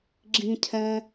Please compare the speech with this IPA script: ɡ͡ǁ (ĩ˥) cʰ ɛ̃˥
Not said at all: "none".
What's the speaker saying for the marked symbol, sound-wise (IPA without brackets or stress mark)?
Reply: ĩ˥